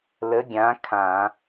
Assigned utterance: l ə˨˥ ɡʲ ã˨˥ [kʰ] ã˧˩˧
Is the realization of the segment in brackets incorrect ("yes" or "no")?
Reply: no